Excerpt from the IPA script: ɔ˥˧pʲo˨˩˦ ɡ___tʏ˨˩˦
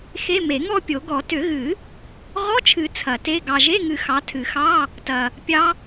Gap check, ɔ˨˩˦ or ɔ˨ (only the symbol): ɔ˨˩˦